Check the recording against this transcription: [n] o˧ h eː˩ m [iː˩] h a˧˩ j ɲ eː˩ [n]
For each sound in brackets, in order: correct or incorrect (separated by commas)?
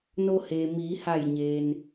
correct, incorrect, correct